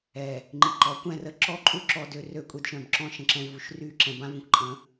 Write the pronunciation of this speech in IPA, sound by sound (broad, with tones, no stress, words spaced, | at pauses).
ɛ˨ | ŋ͡ǃi˨ǃɔ˨˦kʷɛ̃˦˨rə˦ ǁɔ˦ǃʼu˦ǁɔ˨dø˨ rø˦˨kʷʼe˦dʃœ̃˨bǁɔ̃˦ ʃə̃˨ǁɛ̃˦vu˨ʃ ry˦ǁɛ̃˨bã˦və̃˨kʷ ǃʼə̃˨˦